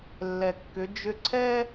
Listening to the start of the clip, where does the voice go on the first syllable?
low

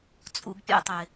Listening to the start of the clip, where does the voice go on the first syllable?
low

